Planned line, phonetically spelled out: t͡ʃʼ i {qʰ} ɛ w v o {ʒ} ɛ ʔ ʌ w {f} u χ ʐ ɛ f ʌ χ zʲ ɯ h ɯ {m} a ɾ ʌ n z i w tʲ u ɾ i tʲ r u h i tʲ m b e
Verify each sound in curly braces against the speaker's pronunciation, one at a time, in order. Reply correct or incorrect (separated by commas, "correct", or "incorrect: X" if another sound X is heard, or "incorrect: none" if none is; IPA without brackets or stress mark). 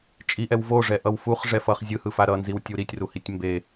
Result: incorrect: ʔ, incorrect: ʐ, correct, incorrect: f